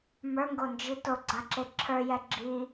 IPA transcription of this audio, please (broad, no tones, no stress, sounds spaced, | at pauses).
m ə˞ ŋ ɡ o n d͡ʒ i t o ɡ͡ǀ a ǁ e ǁʰ ə˞ j ɛ ɡ͡ǁ i